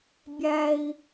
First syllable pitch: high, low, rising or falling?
high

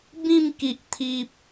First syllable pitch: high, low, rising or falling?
falling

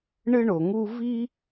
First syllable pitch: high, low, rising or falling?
high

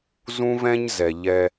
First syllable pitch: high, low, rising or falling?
high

